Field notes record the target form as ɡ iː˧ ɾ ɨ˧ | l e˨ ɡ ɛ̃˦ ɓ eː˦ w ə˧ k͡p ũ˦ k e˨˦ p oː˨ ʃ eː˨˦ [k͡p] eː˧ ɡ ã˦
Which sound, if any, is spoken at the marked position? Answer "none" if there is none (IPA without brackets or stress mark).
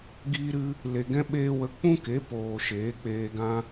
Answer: k͡p